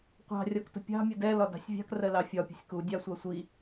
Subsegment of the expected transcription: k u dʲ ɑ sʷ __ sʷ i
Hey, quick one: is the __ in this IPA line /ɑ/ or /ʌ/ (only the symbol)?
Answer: ɑ